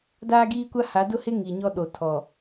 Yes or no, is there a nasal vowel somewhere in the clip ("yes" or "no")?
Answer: no